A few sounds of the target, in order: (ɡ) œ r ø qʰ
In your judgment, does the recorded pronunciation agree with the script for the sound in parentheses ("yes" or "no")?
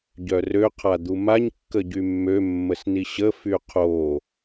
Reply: no